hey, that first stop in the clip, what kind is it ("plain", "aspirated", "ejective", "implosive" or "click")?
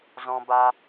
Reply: plain